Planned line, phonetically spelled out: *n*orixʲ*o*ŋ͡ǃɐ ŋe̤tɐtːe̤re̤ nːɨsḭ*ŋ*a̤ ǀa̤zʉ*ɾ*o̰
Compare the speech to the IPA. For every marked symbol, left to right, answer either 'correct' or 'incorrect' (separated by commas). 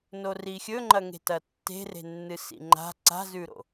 correct, incorrect, incorrect, correct